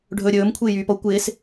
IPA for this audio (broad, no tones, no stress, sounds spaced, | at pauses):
ɖʱ ɵ ɾʲ ɵː m kʷʰ ɪː j yː p ɔ kʷ ɪː s